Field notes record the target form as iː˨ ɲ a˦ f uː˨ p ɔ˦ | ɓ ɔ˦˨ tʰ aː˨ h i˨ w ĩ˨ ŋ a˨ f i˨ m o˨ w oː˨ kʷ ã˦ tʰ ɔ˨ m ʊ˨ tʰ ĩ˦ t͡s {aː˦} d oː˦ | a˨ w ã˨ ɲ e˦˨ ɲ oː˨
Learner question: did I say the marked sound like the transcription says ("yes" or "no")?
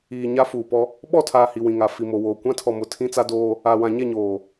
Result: no